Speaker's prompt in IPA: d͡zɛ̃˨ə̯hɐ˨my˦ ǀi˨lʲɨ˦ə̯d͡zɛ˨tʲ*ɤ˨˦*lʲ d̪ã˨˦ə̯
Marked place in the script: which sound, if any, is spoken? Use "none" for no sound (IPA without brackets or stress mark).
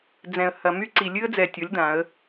ɤ˨˦